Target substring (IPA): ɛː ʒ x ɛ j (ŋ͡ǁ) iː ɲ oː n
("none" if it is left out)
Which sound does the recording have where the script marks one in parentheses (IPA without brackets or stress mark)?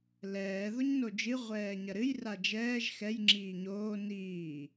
ŋ͡ǁ